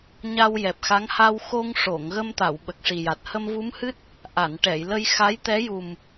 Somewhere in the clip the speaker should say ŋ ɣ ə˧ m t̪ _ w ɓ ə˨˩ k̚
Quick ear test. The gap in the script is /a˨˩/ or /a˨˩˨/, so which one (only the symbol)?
a˨˩˨